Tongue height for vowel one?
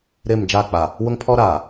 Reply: high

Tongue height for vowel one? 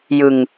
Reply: high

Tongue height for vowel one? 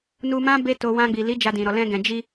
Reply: high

